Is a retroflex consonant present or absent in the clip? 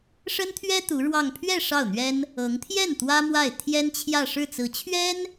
present